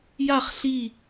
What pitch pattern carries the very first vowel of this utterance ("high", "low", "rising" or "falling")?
falling